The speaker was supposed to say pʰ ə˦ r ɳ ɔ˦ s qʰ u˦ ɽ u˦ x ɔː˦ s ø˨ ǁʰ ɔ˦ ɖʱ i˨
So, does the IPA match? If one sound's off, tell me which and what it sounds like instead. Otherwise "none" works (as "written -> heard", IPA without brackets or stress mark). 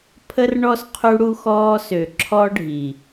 none